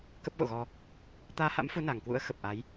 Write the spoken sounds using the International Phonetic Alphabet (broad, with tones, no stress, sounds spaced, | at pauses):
k ə˦˥ p̚ ɣ o̰˧˨ ɣ ɔ˧ | t̪ aː˧ h a̰˧˥ m f u˨˦ n a˨˩ ŋ k w ṵ˧˥ ə̯ x ə˨˩ p̚ ʔ a˨˦ j